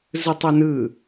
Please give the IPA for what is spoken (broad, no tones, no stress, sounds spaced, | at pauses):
z ɯ tˤ o n ɯ